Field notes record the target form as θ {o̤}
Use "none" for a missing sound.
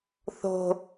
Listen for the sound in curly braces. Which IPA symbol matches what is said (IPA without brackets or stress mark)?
o̤